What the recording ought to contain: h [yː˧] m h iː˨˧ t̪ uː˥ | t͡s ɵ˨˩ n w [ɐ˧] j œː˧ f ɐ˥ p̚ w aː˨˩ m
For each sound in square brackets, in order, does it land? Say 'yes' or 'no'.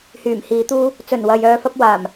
no, no

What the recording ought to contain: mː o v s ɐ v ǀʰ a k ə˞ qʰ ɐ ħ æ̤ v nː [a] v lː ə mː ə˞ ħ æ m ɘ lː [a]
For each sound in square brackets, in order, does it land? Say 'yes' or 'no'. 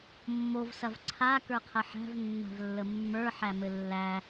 no, no

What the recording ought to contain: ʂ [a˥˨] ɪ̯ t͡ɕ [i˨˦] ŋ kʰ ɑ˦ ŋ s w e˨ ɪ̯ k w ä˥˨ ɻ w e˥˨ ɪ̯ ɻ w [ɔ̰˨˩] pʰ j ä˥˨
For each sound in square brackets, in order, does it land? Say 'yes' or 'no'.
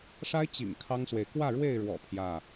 no, no, yes

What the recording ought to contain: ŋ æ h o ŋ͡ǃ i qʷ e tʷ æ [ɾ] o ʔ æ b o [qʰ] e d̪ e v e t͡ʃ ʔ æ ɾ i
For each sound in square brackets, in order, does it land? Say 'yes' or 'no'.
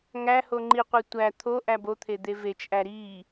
no, no

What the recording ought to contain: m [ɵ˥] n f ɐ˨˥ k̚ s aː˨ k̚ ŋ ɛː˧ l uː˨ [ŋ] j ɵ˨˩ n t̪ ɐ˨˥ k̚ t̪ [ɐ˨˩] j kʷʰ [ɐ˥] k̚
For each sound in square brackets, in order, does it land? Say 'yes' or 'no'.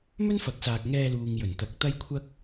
yes, yes, no, yes

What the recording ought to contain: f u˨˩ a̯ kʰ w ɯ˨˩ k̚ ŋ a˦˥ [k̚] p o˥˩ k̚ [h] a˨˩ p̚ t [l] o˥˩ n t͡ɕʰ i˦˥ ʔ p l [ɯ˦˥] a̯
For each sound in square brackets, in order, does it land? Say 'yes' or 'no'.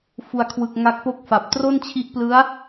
yes, no, no, yes

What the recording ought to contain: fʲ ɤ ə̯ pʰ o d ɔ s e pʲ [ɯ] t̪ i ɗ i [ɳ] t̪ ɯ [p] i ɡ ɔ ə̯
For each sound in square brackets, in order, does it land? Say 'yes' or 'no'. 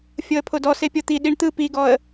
no, yes, yes

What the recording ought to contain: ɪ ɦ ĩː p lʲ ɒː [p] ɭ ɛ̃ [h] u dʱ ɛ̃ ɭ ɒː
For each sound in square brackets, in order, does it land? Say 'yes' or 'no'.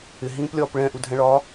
yes, no

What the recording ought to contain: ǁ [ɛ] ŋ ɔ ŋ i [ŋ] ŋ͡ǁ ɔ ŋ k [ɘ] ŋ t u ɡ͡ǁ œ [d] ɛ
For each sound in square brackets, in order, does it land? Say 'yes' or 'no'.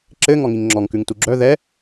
no, yes, no, no

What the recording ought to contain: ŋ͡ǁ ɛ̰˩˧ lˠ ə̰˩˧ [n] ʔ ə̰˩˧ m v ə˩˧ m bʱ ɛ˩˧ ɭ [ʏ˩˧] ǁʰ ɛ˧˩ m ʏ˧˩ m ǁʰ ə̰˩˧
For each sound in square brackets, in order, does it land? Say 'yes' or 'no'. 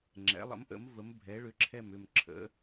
no, yes

